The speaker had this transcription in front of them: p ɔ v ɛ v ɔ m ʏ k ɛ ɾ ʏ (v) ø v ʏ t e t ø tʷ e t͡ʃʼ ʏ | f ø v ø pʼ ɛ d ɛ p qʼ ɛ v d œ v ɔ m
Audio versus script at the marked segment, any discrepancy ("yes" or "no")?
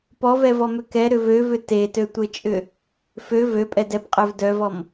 no